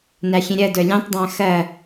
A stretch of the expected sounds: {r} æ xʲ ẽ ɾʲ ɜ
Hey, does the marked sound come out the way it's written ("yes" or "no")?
no